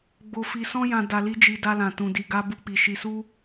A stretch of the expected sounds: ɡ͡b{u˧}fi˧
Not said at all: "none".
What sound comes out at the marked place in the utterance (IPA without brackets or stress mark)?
o˧